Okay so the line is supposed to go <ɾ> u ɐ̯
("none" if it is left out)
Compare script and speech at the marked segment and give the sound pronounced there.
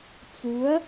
t͡s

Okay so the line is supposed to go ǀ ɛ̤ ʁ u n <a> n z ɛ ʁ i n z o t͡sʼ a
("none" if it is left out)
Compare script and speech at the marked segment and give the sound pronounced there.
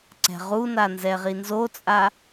a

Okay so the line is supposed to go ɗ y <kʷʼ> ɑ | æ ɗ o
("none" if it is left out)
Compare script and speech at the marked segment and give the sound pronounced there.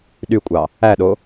kʷʼ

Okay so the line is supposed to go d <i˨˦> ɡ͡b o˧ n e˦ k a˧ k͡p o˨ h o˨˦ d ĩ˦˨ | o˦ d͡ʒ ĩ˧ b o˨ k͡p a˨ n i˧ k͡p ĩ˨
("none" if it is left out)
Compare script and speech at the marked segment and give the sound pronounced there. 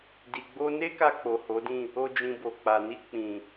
i˨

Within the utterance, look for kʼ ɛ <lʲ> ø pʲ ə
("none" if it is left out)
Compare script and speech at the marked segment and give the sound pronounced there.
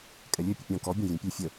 lʲ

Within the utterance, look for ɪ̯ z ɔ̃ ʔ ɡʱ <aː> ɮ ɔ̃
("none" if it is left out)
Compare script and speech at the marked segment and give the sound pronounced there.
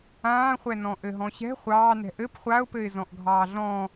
ɑː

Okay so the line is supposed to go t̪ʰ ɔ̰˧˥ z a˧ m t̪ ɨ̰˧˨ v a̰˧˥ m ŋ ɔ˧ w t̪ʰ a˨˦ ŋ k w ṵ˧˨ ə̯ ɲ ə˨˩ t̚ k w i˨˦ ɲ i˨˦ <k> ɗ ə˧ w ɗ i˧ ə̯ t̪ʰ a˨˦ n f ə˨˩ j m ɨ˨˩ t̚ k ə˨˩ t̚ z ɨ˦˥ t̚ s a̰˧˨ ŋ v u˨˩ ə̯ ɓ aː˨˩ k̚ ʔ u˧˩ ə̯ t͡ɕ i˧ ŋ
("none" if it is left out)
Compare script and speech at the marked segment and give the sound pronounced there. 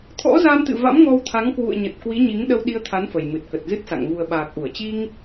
ŋ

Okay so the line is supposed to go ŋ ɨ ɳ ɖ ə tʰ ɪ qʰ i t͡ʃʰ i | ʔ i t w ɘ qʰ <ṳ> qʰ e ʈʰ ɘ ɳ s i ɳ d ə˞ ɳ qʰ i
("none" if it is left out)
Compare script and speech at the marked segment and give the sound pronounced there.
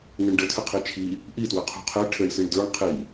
ṳ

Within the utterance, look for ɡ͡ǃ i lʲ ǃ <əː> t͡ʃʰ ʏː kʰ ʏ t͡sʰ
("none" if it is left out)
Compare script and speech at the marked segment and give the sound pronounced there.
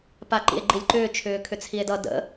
ʏː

